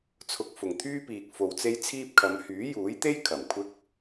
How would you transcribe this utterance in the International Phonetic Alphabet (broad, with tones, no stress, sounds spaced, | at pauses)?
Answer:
t͡sʰ ʊ˨ k̚ f ʊ˨˩ ŋ t̪ʰ yː˥ p iː˨ k̚ f o˨ w t͡s e˥ j t͡sʰ iː˥ p̚ kʰ ɐ˨˧ m h yː˨˥ j uː˨˥ j t̪ e˥ j kʰ ɐ˨˩ m kʷʰ ɪ˥ k̚